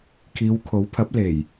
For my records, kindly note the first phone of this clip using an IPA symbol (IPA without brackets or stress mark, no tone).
kʰ